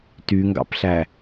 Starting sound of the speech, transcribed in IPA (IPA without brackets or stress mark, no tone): t